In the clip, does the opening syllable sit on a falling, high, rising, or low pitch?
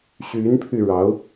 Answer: rising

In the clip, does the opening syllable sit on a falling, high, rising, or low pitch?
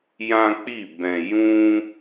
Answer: high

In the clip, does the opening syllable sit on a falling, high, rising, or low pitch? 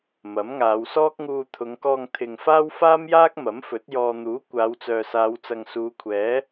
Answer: rising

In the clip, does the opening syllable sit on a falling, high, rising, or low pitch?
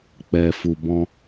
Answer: low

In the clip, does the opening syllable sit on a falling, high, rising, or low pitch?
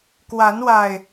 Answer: rising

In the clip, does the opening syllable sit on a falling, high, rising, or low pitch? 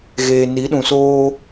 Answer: low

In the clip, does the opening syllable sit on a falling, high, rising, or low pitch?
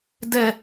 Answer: high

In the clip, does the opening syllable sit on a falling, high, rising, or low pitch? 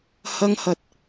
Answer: high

